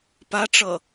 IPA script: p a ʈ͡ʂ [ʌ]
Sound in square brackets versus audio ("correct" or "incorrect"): correct